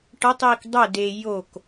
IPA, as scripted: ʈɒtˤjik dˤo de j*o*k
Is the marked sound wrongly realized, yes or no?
no